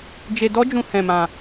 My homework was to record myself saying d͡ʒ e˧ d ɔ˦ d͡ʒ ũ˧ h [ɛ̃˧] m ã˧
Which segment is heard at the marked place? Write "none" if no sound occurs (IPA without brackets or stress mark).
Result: ɛ̃˧